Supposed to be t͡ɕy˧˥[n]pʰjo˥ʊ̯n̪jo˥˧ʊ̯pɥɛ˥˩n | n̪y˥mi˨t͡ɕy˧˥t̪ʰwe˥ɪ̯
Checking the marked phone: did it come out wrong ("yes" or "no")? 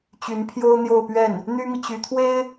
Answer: no